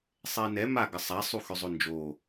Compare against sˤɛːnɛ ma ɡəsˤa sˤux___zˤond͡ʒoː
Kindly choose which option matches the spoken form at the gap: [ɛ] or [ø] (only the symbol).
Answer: ø